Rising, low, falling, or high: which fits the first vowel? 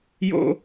high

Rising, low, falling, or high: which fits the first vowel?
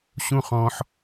high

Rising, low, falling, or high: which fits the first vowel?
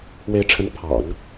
rising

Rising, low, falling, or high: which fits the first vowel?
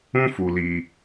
high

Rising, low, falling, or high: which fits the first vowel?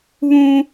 high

